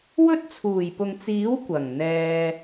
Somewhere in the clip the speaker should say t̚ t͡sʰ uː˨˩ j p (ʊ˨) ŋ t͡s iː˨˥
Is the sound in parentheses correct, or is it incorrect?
correct